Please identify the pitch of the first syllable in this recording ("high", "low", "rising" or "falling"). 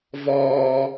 low